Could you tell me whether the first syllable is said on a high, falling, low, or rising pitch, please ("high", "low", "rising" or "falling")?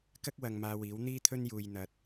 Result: high